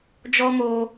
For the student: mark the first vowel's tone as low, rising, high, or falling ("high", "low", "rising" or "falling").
high